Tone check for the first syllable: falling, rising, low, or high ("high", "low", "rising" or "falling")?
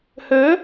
rising